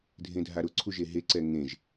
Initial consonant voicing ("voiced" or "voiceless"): voiced